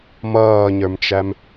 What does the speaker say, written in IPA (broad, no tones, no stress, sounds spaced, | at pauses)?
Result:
m ʌː ɲ ə˞ m t͡ʃ æ m